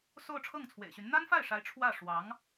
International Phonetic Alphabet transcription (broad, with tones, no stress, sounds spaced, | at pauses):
s o˥˧ ʊ̯ ʈ͡ʂʰ ɤ˥˩ ŋ t͡sʰ w ḛ˨˩ ɪ̯ ɕ y˧˥ n n̪ a˥ n f a˥˩ ɪ̯ ʂ a˧˥ ɪ̯ ʈ͡ʂʰ w ä˥˩ ʂ w ɑ˧˥ ŋ